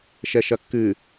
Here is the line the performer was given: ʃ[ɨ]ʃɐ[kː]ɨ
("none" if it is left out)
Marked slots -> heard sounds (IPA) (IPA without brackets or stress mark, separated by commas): ɛ, kː